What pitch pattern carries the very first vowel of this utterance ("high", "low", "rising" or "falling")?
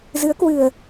rising